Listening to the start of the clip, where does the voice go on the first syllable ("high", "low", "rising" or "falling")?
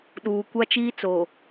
low